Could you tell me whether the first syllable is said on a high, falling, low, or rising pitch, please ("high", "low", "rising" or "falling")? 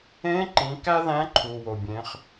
rising